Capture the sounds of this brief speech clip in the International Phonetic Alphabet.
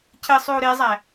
cʰɘ sˤʉu̯ɾezˤæ

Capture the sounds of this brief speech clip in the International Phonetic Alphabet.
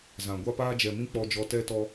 zã˨ ɡʷa˧paː˧d͡ʒɛ˨ mĩ˦k͡pɔ˧d͡ʒɔ˧ tɛ˧tɔ˧

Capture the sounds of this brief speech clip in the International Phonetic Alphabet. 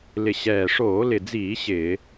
lɪ˨˩ ɕɛː˨˩ ʂoː˧˩˧lɪ˨˩d͡ziː˧˩˧ ɕɪː˧˩˧

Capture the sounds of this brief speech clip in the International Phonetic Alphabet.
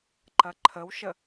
ǃɐǃʰəwʃə

